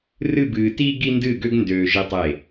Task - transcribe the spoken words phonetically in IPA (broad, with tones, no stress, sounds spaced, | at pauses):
r ɨ˥˧ b ɨː˧ t iː˥ ɡ i˥ n d ɨː˥˧ ɡ ø˥ ɡ n d øː˧ ʒ i˧ tˤ eː˧˩